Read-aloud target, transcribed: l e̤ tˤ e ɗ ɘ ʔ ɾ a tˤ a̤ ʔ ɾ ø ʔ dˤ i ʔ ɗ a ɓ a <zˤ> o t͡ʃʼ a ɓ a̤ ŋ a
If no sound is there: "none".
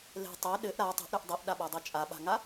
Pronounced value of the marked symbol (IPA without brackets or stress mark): dˤ